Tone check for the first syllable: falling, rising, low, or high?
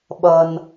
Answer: low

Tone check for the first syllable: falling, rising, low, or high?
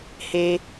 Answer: high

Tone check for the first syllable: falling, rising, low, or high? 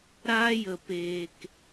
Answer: high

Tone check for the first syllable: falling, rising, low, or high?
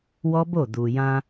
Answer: high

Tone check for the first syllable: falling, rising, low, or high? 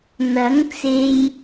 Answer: rising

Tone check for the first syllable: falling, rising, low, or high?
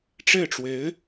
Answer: falling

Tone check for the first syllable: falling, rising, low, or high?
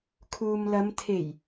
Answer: low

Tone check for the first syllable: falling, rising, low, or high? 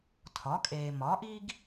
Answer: rising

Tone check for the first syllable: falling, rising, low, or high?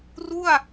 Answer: falling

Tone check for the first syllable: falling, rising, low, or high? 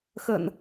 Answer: low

